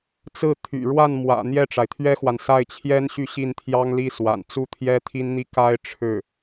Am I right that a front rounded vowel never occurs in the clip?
no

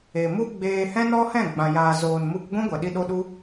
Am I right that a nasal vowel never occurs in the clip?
no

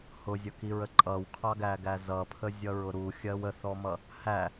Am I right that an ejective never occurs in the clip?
no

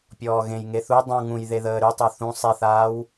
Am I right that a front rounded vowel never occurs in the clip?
no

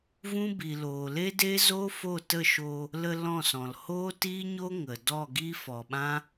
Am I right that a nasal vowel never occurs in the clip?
no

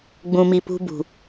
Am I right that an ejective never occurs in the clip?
yes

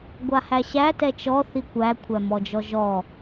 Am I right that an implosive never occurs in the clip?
yes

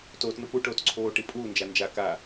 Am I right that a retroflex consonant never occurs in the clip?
no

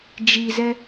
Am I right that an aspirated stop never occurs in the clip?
yes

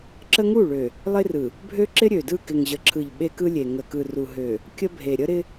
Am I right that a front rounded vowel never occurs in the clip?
no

